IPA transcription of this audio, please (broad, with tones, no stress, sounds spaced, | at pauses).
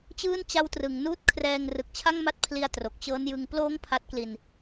t͡ɕ ɯː˥˩ n t͡ɕ a˦˥ w t r ɯ˩˦ ŋ n uː˥˩ t̚ kʰ r ɛː˧ ŋ r ɯ˨˩ k̚ t͡ɕʰ a˥˩ ŋ m a˦˥ t̚ pʰ l i˧ a̯ t r o˨˩ k̚ t͡ɕ ɤː˦˥ n j ɯ˧ ŋ p l oː˦˥ ŋ pʰ a˦˥ t̚ k l i˧ n